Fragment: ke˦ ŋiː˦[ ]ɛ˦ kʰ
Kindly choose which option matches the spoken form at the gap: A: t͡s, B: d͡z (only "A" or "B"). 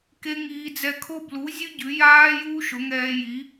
B